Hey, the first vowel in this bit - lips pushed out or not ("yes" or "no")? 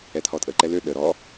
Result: no